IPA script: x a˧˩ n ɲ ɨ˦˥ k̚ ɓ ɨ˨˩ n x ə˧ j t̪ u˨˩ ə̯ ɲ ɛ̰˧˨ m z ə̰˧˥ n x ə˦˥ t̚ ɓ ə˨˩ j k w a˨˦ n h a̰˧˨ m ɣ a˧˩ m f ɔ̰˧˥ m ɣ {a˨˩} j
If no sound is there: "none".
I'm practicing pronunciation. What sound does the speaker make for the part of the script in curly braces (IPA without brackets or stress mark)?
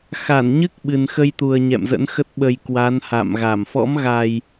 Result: a˨˩